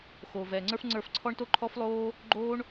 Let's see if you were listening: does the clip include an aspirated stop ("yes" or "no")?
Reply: yes